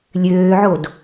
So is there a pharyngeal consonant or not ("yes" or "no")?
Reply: yes